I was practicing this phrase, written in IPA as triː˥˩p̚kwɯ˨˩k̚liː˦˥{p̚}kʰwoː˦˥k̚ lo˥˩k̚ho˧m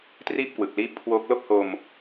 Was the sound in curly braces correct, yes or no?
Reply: yes